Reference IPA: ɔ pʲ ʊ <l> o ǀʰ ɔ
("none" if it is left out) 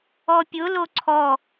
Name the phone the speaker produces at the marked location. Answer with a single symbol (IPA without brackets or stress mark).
l